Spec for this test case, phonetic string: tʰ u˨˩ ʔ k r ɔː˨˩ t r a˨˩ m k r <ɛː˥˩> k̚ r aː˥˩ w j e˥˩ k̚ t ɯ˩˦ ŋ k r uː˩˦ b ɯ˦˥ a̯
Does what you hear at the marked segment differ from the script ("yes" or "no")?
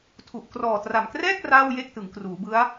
no